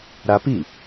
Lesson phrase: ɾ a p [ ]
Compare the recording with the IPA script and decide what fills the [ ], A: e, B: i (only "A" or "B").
B